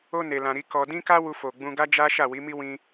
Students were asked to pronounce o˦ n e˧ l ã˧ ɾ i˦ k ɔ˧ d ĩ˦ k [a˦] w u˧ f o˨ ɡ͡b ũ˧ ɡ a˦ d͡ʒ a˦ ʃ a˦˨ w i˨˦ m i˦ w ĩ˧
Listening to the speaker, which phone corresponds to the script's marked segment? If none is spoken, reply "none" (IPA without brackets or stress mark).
a˦